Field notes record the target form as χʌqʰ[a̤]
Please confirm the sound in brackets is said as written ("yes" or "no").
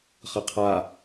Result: no